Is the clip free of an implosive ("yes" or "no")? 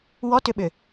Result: no